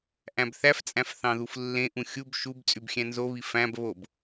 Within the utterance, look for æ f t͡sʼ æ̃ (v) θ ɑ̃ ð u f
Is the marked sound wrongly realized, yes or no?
yes